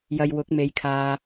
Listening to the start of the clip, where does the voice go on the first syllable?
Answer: low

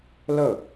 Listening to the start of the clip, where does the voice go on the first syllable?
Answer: falling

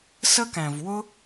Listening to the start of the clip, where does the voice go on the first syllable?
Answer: high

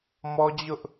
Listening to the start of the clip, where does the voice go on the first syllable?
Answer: high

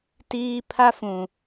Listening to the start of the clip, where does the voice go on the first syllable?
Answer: high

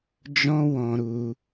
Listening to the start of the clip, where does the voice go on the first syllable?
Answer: high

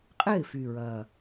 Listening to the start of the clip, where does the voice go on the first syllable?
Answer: falling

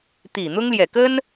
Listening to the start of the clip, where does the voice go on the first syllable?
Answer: low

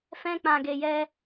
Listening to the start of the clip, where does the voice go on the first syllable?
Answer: high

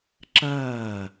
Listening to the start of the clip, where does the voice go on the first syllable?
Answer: falling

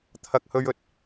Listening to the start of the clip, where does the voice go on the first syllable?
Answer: low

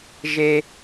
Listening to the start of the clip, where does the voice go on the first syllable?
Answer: high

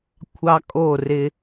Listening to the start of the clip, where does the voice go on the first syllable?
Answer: high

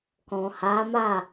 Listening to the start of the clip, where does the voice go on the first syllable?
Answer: low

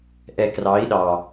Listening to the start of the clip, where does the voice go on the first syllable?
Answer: low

